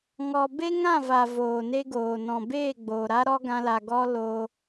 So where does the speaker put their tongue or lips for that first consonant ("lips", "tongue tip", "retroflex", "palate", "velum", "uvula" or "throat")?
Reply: velum